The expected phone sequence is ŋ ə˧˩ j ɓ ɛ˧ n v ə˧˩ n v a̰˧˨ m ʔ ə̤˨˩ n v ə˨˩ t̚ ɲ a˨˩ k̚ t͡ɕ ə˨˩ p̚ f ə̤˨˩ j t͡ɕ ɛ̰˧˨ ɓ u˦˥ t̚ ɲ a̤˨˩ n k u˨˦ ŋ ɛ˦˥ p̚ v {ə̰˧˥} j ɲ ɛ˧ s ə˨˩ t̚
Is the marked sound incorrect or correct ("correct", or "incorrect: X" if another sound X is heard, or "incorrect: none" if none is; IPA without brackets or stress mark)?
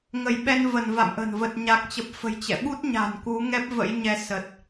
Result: correct